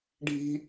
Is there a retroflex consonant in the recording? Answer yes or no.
yes